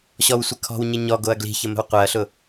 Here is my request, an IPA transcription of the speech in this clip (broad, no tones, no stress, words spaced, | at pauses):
ɕɔwsʷəkʰɔ̤wɲɘ ɲɔɡoɐ̯ ɡli̤çə mə̤wqʷɛɐ̯ɬʊ